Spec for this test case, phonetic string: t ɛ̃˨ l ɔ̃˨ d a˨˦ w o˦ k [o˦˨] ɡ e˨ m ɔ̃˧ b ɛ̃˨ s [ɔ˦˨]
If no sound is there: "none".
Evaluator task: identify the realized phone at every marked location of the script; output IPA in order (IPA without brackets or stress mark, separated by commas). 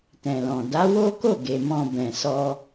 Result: o˦˨, ɔ˧